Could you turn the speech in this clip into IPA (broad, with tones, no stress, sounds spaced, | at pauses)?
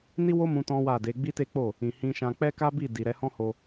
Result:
n i˦ w o˦ m ũ˧ t ɔ̃˦ w a˦˨ d e˨˦ ɡ͡b i˦ t e˦ k͡p o˦˨ | ĩ˨ h ĩ˧ ʃ ã˧ k͡p ɛ˦ k a˦ b i˦˨ d i˨ ɾ ɛ˧ h ɔ̃˦ h o˧